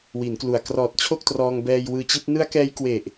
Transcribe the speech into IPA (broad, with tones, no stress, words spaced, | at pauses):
wi˩˦nklu˨˩a̯ krɔː˨˩t̚ t͡ɕʰo˥˩k̚trɔː˧ŋ bɛː˧jwɯː˧t͡ɕi˦˥t̚ nɯ˦˥a̯kɛː˦˥jkwe˨˩ʔ